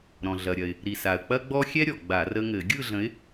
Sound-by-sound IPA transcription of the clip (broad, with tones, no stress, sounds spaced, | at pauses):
ɾ ɔ̃˩ ɮ ɐ˩ ɾʲ ɐ˩ ɪ̯ | ɾ i˩ s a˩ ə̯ k͡p ɐ˦ ɡ͡b ɔ˦ xʲ ɛ˦ ɾʲ ɔ˩ ɡ͡b a˧˩˧ r ə˦ ŋ ɘ˧˩˧ ɡʲ ɯ˦˨ ɮ ə̃˨˦ ɪ̯